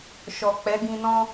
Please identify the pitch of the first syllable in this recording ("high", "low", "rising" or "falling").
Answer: low